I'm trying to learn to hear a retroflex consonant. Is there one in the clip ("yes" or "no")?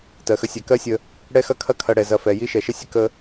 yes